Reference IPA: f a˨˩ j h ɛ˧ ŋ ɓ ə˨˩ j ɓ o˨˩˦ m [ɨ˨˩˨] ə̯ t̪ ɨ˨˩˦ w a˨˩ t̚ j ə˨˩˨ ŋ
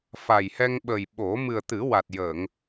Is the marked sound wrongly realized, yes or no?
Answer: yes